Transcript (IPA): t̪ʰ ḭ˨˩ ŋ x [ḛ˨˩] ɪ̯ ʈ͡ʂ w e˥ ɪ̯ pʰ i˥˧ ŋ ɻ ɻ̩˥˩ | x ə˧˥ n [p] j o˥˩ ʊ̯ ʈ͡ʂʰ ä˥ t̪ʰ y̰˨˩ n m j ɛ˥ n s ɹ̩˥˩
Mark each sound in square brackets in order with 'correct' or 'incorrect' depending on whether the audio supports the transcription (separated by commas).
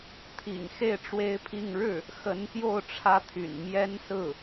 incorrect, correct